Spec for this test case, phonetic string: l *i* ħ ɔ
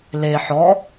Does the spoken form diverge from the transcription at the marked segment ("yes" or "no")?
yes